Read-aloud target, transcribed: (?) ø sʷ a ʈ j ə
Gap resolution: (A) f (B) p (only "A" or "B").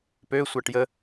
B